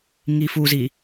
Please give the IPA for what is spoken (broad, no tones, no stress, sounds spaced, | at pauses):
ŋ i f u z i